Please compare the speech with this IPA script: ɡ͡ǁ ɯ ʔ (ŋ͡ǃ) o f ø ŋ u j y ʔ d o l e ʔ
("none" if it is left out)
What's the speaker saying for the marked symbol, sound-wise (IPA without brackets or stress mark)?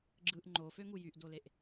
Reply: ŋ͡ǃ